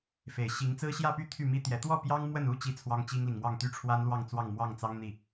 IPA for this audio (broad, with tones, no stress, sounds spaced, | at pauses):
f e˨˩ ɪ̯ ɕ i˧˥ ŋ t͡s ɹ̩˥ ɕ j ä˥˧ p y˥˧ t̪ʰ y˥˩ m i˥ t̪ j ɛ˧˥ t̪ w ɔ˥˩ p j ɑ˥ ŋ m w ə˥˩ n u˥ t͡ɕ i˥˩ t͡sʰ w ɑ˥ ŋ t͡ɕ i˥ ŋ l i˨ ŋ m w ɑ˥˩ ŋ t̪ y˥ ʈ͡ʂʰ w a˥ n l w ɑ˥˧ ŋ t͡s w ɑ˥˧ ŋ m w ɑ˥˩ ŋ t͡s ɑ˥ ŋ n̪ i˥˩